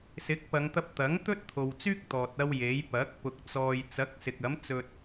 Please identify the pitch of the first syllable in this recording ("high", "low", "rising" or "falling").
rising